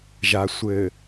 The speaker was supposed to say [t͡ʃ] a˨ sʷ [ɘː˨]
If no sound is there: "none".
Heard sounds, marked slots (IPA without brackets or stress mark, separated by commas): ʒ, ɘː˨